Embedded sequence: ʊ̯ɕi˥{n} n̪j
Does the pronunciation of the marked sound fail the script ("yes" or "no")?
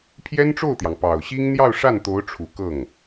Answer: yes